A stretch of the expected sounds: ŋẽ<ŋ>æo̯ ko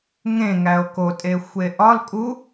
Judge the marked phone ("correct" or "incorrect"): correct